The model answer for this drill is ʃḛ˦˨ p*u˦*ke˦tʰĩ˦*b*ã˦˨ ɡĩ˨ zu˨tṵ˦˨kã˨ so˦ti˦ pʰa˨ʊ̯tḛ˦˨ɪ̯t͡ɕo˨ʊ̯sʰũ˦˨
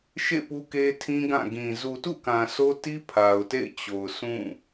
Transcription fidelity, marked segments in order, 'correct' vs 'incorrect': correct, incorrect

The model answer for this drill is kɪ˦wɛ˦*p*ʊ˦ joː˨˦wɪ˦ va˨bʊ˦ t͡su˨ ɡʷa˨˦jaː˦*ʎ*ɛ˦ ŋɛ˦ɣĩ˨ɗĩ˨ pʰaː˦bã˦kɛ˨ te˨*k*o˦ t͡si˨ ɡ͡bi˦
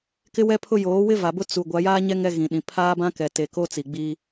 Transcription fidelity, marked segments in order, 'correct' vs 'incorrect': incorrect, incorrect, correct

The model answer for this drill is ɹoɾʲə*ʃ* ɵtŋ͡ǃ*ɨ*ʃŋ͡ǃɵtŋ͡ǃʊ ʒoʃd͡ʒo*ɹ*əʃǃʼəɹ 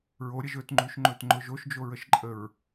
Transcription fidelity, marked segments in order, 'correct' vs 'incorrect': incorrect, incorrect, correct

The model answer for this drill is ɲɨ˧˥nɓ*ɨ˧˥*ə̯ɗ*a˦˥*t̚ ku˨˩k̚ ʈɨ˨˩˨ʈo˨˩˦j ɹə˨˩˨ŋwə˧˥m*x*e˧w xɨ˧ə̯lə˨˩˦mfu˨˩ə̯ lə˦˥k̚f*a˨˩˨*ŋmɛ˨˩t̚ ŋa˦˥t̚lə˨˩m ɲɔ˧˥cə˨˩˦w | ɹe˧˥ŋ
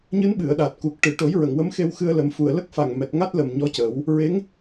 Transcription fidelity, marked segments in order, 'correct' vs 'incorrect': incorrect, incorrect, correct, incorrect

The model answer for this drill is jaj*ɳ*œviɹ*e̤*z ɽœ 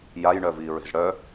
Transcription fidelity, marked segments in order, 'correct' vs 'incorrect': correct, correct

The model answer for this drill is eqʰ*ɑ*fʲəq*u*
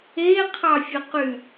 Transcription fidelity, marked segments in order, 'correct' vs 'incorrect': correct, incorrect

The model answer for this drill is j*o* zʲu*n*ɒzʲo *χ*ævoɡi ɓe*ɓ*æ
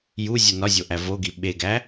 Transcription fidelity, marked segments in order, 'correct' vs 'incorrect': incorrect, correct, incorrect, incorrect

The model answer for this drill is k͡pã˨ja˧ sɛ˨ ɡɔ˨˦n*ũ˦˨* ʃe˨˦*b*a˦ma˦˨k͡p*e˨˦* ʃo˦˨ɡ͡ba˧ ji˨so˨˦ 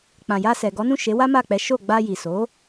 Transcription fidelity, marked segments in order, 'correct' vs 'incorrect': correct, incorrect, incorrect

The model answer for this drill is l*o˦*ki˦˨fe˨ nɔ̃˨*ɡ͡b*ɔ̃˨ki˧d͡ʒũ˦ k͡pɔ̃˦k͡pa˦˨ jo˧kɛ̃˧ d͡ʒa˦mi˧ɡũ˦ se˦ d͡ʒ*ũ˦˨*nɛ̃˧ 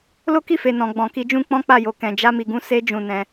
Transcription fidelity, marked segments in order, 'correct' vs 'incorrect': correct, correct, correct

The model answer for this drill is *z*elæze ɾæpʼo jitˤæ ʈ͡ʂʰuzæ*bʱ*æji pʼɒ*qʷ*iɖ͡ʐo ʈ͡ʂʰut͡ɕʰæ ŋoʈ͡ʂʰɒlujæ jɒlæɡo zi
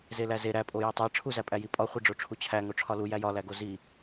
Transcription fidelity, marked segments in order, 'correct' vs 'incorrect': correct, incorrect, incorrect

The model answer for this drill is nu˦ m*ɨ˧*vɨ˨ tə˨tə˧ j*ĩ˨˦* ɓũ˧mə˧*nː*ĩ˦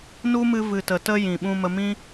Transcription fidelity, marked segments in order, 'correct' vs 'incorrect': correct, incorrect, incorrect

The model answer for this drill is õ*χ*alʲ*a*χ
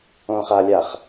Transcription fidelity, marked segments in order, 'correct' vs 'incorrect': correct, correct

